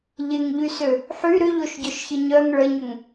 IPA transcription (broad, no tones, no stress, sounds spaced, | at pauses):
ʎ ɪ ŋ ʎ y s ø | ħ y ɾ ʏ ʎ o ʃ ɟ œ ʃ ç ɪ ɲ œ ŋ ɭ ə ɲ ʏ ŋ